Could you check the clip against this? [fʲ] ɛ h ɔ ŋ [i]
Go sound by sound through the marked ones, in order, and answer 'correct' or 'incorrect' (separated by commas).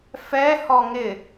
incorrect, incorrect